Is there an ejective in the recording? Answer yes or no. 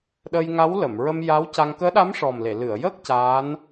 no